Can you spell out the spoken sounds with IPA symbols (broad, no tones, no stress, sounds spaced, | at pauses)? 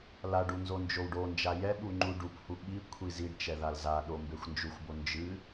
l a ɖ u n z o n d͡ʒ o w ɖ o n d͡ʒ a j ɛ ɓ u ŋ͡ǃ u ɖ u p h u ɓ i kʷʰ i z i ɖ t͡ʃ ɛ ð a l z a ɗ o m b e xʷ n d͡ʒ u xʷ b o n d͡ʒ ɨ